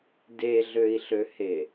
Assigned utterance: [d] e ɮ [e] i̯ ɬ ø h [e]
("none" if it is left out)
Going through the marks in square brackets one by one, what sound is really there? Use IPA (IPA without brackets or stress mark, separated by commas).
d, ø, e